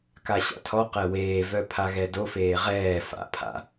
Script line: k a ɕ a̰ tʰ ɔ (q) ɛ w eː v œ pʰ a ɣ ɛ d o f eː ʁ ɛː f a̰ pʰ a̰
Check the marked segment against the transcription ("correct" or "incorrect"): correct